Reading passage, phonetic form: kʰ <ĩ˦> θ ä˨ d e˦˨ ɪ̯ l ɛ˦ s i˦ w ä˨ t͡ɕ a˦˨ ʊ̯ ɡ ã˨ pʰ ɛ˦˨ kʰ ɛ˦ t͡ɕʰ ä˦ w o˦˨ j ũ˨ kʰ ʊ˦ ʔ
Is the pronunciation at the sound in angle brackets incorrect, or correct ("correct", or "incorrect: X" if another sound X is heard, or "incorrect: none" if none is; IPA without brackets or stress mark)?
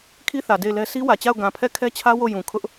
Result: incorrect: i˦